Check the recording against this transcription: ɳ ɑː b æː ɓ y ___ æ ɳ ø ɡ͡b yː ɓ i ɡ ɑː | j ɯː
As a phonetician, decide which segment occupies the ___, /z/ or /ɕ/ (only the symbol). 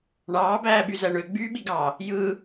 z